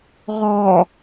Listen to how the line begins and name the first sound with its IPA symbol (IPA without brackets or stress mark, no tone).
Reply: ʁ